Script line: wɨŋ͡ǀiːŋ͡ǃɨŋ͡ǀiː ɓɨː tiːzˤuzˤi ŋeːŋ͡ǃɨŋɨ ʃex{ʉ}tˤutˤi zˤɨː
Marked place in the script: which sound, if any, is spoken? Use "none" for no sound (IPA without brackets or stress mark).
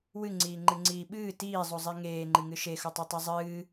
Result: u